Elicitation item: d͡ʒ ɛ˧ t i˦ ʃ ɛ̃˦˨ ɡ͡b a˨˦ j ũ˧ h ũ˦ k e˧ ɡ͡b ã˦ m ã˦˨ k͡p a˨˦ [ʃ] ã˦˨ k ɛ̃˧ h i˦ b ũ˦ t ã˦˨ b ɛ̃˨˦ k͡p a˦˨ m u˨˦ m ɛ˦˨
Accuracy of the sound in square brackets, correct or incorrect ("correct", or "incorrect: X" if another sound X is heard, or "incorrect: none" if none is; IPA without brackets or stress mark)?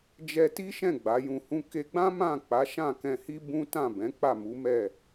correct